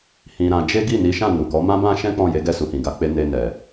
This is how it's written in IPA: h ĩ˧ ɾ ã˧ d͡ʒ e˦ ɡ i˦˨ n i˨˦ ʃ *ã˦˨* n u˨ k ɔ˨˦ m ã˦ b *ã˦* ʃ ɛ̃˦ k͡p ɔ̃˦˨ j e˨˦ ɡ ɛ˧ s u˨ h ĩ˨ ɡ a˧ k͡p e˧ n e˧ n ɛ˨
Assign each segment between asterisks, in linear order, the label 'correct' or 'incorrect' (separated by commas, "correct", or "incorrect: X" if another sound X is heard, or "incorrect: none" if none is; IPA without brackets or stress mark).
correct, correct